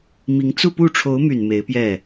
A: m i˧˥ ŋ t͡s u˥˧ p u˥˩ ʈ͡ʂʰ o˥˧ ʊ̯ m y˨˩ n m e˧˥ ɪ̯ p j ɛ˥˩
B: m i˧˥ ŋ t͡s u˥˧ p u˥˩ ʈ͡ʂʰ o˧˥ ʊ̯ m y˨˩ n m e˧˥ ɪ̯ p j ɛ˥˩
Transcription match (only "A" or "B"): B